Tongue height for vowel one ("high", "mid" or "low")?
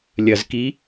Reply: low